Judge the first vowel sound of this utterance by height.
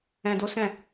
mid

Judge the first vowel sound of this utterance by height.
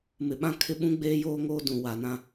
high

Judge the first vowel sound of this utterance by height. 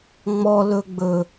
mid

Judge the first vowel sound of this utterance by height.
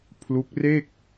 high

